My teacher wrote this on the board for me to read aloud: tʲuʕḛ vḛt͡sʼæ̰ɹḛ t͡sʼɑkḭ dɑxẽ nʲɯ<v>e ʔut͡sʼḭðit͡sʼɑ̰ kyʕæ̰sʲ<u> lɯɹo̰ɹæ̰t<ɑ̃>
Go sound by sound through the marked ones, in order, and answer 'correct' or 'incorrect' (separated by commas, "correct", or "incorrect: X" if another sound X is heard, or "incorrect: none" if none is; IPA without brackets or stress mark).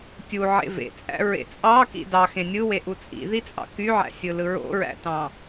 incorrect: w, incorrect: ɯ, correct